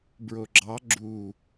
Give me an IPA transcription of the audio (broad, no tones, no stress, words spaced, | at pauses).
bɹoɡ͡ǁɑ ɡ͡ǁu